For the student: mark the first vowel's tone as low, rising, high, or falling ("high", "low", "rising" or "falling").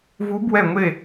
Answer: rising